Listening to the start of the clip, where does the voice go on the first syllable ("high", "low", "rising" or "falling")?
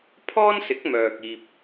high